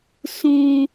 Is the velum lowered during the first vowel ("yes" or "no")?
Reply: yes